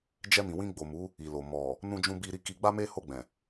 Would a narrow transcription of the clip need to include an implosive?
no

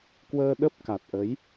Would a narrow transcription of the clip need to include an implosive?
yes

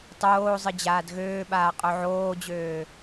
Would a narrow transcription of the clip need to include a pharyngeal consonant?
yes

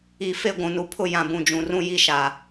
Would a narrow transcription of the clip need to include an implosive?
no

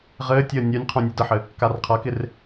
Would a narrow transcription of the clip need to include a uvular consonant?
yes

